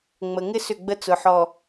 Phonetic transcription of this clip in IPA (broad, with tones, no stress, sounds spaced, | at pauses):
ŋ͡m ə˨ ŋ ɪ˦ s ʏ˦˨ ɡ͡b ə˦ t͡s ʊ˨ ħ ɔ˨